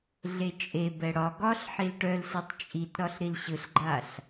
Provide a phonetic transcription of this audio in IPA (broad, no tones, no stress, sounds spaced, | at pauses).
ɮ e t͡ʃʼ e b ɛ ɽ ɒ ɡ ɒ ɬ ħ i l ʈ œ l s ɛ tˤ t͡ʃʼ i t ɾ ɒ ɬ ɾ i l ɕ ɯ ɬ ɡ͡ǃ a ɬ